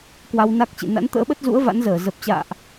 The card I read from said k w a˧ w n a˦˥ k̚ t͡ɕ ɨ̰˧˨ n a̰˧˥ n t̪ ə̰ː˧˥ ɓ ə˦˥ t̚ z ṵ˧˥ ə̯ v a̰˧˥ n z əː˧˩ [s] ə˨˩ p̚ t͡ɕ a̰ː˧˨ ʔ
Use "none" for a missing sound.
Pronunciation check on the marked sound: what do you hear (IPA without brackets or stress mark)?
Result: z